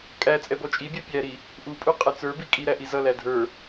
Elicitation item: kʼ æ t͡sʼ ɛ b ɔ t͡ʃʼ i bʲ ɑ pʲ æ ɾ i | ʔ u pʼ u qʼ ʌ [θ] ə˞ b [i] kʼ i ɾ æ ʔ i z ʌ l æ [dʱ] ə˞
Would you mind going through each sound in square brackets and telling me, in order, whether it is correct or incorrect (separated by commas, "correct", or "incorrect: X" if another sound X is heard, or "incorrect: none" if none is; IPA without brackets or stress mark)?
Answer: incorrect: t͡s, correct, correct